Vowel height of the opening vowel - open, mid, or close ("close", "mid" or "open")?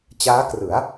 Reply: open